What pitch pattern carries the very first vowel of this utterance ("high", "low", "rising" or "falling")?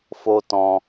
high